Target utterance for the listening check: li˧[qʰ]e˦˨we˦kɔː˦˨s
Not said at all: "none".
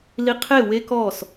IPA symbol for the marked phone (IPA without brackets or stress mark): qʰ